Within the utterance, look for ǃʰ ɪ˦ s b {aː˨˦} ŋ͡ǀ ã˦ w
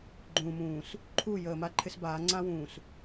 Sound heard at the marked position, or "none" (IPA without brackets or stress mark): aː˨˦